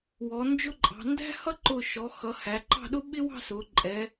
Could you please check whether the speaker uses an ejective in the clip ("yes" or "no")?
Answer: yes